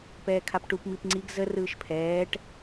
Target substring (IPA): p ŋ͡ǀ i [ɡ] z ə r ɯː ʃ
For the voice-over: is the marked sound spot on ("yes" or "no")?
yes